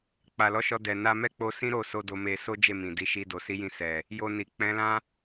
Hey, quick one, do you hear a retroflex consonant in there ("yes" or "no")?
no